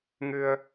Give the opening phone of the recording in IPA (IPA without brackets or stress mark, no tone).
ŋ